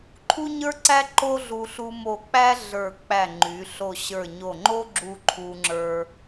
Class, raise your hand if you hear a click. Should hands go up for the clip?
yes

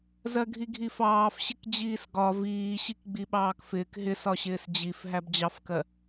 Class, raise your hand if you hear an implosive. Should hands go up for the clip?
yes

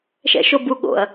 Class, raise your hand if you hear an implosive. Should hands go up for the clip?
yes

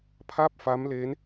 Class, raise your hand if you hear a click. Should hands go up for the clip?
no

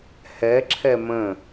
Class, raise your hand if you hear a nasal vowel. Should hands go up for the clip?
yes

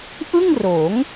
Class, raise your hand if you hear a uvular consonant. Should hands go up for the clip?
no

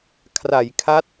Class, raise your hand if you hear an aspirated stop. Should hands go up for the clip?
yes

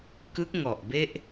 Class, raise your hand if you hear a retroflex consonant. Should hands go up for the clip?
no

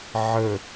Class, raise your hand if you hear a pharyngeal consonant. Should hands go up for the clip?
yes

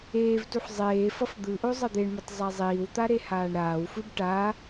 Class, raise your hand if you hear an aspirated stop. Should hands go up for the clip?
no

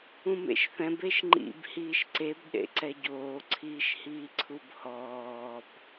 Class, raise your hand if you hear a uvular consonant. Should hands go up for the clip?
no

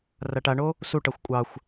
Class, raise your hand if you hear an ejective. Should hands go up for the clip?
yes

